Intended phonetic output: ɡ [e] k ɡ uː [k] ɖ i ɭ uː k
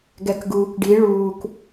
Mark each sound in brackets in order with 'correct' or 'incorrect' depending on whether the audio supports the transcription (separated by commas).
incorrect, correct